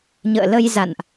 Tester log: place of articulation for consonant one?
palatal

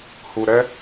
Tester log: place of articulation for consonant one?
glottal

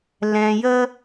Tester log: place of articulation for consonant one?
alveolar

